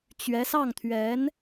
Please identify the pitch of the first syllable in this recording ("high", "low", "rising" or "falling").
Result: rising